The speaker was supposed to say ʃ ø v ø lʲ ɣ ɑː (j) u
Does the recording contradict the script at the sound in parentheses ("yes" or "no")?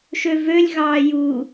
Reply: no